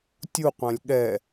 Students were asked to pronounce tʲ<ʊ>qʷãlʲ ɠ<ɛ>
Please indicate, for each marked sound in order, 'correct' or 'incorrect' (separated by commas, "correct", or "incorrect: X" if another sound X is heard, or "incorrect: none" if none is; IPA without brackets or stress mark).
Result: incorrect: u, correct